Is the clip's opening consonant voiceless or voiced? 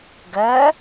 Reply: voiced